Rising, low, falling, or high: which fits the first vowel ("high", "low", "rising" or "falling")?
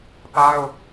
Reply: high